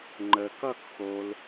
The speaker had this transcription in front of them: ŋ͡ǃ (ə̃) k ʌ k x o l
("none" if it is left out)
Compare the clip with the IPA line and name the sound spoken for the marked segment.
ə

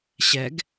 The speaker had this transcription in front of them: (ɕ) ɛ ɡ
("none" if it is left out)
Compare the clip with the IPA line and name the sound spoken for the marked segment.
ɕ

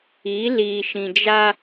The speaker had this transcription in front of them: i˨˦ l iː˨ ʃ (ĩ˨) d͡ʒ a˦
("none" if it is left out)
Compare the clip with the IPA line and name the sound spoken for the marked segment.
ĩ˨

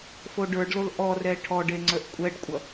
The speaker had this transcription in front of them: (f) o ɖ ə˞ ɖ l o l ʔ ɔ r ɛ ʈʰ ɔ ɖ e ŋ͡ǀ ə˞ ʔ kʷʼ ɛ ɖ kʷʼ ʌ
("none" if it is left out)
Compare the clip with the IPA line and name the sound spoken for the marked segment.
f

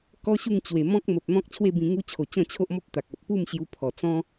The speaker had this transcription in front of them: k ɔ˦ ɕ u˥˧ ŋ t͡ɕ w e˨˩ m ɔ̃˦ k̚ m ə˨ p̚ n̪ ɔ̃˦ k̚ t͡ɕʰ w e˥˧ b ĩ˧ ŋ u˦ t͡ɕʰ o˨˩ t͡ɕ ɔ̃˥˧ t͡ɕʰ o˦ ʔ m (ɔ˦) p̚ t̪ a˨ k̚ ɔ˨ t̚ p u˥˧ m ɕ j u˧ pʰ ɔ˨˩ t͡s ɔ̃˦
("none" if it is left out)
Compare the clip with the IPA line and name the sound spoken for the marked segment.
ɔ˦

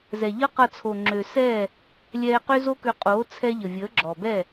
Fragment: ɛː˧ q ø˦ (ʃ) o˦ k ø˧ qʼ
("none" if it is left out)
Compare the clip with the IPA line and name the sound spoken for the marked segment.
z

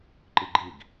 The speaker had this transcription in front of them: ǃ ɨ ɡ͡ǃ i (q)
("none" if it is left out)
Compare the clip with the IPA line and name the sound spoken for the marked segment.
ɡ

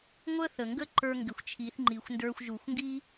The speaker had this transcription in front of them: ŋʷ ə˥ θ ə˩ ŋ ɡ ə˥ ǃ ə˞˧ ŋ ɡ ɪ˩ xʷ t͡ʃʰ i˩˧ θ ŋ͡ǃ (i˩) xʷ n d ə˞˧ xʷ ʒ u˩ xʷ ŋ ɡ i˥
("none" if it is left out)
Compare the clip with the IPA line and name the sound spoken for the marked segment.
i˩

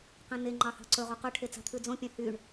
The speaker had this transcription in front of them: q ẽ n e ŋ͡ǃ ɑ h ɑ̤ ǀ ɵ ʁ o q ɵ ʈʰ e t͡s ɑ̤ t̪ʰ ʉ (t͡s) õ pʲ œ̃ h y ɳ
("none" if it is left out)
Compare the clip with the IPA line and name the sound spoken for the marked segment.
d͡z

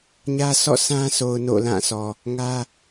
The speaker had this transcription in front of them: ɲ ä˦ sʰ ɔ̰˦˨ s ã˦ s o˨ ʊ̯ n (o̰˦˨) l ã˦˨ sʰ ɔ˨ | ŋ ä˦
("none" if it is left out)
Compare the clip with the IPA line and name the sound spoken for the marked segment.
o̰˦˨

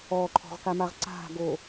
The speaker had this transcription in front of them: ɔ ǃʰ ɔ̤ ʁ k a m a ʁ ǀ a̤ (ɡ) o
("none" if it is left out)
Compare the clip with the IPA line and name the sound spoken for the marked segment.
ɡ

